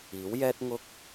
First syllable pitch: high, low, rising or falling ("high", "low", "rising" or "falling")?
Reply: rising